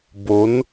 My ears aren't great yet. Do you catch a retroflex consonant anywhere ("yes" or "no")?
no